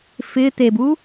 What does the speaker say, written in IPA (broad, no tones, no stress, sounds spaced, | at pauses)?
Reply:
f ɪ t̪ e b u